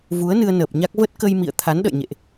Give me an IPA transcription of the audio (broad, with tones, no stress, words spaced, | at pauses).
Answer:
vu˨˦ə̯nɨ˧ə̯ nəː˨˩p̚ɲa˦˥k̚ və˦˥t̚kə˧jmḭ˧˨ə̯ t̪ʰa˨˦nɗə̰˧˨jɲḛ˧˨ʔ